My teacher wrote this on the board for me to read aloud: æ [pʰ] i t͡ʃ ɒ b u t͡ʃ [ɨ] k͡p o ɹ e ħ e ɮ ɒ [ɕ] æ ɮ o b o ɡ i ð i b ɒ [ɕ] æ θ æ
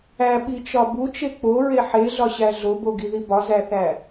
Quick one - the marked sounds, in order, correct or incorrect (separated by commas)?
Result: incorrect, incorrect, correct, incorrect